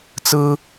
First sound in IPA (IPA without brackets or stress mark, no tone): t͡s